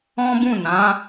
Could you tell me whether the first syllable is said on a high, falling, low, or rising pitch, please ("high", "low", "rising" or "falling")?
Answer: high